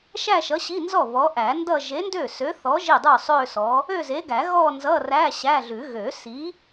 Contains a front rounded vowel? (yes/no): yes